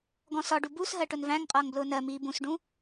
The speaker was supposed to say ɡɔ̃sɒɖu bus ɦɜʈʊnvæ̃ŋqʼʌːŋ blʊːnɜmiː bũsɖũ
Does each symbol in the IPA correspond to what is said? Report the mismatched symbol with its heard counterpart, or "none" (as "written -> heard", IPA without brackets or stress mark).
none